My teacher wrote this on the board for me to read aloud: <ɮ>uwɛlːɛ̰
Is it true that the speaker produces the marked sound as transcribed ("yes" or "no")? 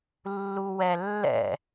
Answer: no